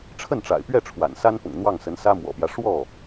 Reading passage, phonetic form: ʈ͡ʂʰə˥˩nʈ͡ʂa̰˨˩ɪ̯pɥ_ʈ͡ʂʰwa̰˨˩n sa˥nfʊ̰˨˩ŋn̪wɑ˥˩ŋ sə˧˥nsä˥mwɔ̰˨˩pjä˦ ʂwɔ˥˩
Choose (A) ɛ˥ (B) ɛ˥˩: B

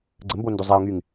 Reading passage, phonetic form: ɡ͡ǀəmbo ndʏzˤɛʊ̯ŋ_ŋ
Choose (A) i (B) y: B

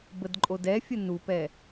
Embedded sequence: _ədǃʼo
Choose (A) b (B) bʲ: A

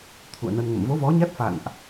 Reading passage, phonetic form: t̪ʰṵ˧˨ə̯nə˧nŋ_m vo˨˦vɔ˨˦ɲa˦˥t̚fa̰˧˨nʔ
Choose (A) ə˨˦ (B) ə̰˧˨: B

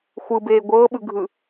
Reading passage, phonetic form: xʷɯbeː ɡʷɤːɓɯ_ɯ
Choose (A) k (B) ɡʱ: B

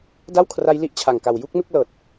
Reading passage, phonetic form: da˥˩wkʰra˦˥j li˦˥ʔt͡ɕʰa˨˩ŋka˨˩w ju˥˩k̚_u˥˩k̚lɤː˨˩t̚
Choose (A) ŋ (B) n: B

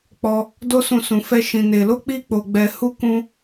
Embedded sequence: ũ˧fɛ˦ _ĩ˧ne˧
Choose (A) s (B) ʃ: B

